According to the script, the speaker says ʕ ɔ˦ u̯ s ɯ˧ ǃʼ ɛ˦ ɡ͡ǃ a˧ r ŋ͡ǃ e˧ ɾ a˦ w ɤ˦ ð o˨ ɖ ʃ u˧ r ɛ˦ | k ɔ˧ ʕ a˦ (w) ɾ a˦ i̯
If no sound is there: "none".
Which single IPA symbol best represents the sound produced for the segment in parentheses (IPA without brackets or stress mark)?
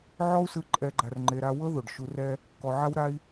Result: w